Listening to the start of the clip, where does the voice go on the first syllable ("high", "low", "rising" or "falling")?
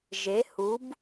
rising